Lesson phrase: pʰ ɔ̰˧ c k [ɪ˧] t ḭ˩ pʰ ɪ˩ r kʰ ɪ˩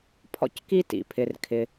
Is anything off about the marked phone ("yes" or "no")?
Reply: yes